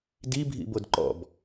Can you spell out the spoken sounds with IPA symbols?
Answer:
d i bʱ ḭ b o d ǃ ɔ̰ b

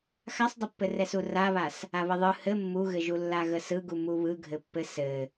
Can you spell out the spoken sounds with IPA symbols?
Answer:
x a sˤ dˤ ɘ pː ɘ r ɛ s u r a β a s | a β ə ðˤ ɯ h ɘ mː u ɣ ɘ ʒ u lː a ɣ ə s ɯ ɡ u m u β ɯ ɡʱ ɘ pː ɘ s ɘ

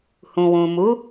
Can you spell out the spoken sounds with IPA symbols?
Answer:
h ũ˨ w ũ˨ m u˨˦

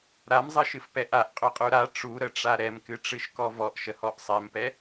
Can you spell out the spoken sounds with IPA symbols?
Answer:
ɾ a m zˤ ɨ ʃ ɨ f p ɛ ʔ a ʔ qʼ ø qʼ u ɾ a ʈ͡ʂ u ɾ ə ʈ͡ʂ a ɾ ɛ m k ɨ ʈ͡ʂ ɨ ʃ k ɔ v ɔ ʔ ʃ ə h ɔ ʔ sˤ ɛ m p ɛ

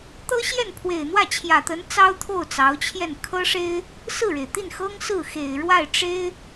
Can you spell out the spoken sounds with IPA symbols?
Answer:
t̪ ɤ˥ ɕ j ɛ˥˩ n pʰ w e˨˩ ɪ̯ n̪ w ä˥˩ t͡ɕʰ j ä˨˩ t̪ ə˧˥ n t͡s ɑ˥ ʊ̯ t̪ʰ o˥˩ ʊ̯ t͡s ɑ˧˥ ʊ̯ t͡ɕʰ j ɛ˥˩ n kʰ ɤ˥ ʂ e˥ ɪ̯ | s ɹ̩˥˩ ɻ e˩ ɪ̯ t̪ i˥˩ n x ɤ˥ ŋ s ɹ̩˥˩ x e˨˩ ɪ̯ ɻ w a˥˩ ɪ̯ ʈ͡ʂ e˥ ɪ̯

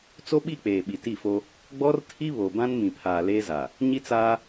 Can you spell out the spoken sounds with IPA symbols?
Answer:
t͡s o˦ ɓ i˦˨ k͡p eː˨ ɓ i˨ t i˦˨ f o˦ | ɡ͡b ɔ˦ r tʰ i˦ β o˨ b ã˦ n m ĩ˨ pʰ aː˨ l eː˦ z a˨ | ɲ i˦ t͡s aː˦

